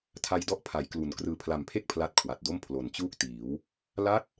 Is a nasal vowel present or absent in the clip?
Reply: absent